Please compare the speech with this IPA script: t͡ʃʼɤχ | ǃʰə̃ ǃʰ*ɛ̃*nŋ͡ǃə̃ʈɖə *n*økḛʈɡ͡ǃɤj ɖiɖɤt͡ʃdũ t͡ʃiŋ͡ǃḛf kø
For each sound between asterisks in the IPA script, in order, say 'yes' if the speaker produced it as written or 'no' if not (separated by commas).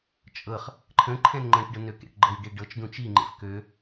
yes, yes